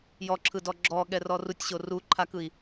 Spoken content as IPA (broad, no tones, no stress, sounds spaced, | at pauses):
j ɔ ǁʰ ɯ d ɔ ɡ͡ǁ ɔ ɠ ɛ r ɔ r u tʲ ɕ o r u ǃʰ a k ɯ i̯